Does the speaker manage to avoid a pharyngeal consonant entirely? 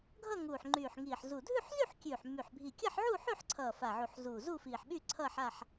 no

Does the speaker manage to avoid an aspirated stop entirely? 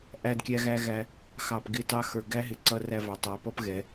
yes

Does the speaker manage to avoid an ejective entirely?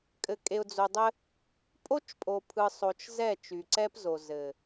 no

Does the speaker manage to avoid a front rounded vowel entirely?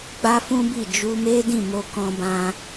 yes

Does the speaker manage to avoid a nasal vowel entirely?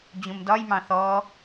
no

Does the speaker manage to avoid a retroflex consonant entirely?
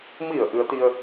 yes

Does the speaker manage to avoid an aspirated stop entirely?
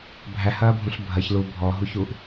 yes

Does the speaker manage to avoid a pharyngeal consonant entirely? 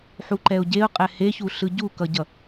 no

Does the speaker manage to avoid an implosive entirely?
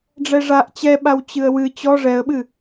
no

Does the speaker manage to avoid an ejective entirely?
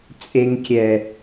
no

